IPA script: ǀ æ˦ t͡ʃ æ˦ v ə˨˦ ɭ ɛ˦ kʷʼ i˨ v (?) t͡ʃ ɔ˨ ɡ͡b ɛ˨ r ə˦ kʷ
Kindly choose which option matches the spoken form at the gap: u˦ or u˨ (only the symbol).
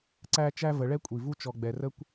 u˦